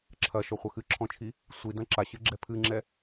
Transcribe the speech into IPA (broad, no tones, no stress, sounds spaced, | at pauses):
ǁʰ ɐ ʃ ɔ χʷ ɐ x ɨ ǁʰ ɔ̃ t͡ʃʰ i | sʷ i d ɐ̃ ǁ a ɕ ɨ ɡ͡ǁ ɛ pʰ ɨ ŋ͡ǁ ɛ